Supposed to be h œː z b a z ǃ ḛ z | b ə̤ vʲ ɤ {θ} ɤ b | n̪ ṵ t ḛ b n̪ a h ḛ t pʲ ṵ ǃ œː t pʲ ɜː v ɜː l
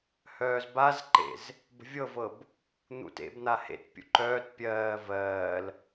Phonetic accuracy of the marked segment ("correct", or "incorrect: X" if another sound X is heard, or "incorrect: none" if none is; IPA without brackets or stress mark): incorrect: v